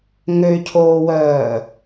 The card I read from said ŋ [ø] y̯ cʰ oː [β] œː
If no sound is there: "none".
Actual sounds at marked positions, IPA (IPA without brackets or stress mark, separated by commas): ø, w